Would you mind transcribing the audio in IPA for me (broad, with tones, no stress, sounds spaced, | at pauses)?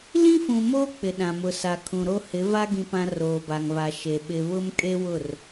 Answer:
l ĩ˦ f ũ˨ m oː˦ k͡p ɪ˨ ɗ ã˨ m ʊ˨ s a˨ kʰ ũ˨ ɾ o˦ h ɪ˨˦ v a˦ ɡ ĩ˨ p ã˨ r oː˨ b a˨ ŋ β a˨ ʃ e˨ ɓ ɪ˨ β ʊ˦ m kʼ e˦ w ʊ˦˨ r